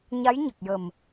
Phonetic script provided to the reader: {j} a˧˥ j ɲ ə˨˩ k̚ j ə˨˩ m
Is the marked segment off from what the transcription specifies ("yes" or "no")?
yes